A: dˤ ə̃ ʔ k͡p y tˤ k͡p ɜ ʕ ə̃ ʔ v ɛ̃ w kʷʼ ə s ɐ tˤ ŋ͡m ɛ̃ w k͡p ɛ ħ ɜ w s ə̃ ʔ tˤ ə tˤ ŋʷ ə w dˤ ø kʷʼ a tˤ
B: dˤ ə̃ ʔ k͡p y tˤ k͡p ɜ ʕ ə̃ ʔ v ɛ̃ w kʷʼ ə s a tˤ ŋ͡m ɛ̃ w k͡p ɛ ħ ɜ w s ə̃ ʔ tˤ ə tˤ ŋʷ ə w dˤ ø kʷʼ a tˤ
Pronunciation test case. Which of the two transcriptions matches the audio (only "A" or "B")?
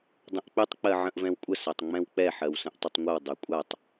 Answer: B